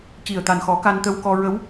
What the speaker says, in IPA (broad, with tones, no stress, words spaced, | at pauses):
ci˨˩ə̯t̪a˨˩nxɔ˨˩˦ ka˧nt̪ə˧wkɔ˧ ɹə˧˥w